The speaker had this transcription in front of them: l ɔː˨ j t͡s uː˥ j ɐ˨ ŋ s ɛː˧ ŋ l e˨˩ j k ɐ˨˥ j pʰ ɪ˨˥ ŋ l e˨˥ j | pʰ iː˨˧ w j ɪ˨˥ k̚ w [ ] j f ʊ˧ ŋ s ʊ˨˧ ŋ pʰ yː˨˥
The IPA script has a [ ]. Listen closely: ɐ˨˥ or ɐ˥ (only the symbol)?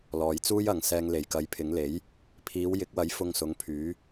ɐ˨˥